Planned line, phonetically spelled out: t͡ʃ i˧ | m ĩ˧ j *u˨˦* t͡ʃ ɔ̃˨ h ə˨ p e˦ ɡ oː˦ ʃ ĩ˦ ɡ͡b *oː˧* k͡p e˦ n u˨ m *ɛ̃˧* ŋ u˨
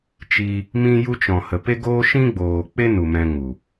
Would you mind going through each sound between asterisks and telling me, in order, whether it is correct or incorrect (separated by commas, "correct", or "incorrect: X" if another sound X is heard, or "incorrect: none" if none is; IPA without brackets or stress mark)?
incorrect: u˧, incorrect: oː˨, correct